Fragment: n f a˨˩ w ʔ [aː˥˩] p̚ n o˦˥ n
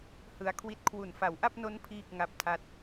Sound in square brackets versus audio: incorrect: a˥˩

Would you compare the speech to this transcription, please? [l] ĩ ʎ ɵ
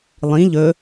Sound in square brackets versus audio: incorrect: lˠ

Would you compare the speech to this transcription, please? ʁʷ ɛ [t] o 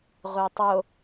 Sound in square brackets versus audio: incorrect: tˤ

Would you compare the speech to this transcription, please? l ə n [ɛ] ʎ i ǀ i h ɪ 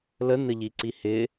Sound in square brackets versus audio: incorrect: ə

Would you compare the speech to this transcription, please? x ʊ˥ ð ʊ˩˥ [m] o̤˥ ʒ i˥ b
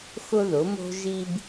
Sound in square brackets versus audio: correct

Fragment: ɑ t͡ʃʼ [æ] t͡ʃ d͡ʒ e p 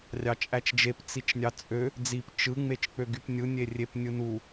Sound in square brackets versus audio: correct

